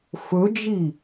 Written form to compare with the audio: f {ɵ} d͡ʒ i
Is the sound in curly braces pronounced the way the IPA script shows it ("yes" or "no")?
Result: yes